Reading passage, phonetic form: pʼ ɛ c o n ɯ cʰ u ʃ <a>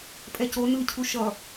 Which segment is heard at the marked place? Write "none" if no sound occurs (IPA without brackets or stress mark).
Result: ʌ